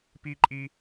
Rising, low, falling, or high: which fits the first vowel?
high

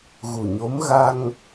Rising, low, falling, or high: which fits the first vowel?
low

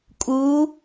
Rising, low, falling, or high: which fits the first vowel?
rising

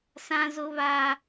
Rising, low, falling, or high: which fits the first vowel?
high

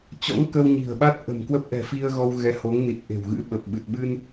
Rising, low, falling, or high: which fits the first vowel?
rising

